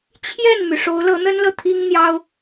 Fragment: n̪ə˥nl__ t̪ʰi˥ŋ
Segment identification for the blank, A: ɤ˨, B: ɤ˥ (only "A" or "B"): A